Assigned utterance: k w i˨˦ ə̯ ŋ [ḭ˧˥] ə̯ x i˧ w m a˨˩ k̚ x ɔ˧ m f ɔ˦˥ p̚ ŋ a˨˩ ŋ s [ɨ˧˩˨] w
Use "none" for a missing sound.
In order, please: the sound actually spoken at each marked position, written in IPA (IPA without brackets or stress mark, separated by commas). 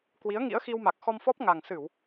ḭ˧˥, ɨ˧˩˨